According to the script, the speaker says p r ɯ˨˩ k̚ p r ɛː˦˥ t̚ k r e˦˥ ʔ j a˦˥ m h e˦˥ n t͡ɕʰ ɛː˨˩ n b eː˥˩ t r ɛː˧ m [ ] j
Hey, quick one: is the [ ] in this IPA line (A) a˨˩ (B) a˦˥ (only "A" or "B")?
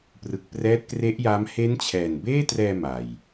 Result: A